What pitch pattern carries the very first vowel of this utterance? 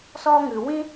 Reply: high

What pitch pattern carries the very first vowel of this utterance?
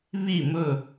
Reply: falling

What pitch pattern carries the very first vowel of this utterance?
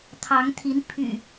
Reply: rising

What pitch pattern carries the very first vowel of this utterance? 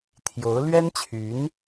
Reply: rising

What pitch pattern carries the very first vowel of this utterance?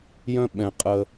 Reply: high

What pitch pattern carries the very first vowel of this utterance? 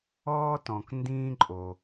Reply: high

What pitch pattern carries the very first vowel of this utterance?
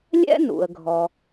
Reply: high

